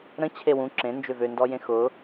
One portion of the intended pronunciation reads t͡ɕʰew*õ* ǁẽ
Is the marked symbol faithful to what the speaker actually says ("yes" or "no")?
no